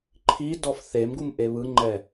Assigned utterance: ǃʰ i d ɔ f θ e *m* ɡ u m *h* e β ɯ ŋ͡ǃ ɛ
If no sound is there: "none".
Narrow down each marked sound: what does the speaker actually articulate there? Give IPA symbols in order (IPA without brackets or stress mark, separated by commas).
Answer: m, ʔ